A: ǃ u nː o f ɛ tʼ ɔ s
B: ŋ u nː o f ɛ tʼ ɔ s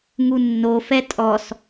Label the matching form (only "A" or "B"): B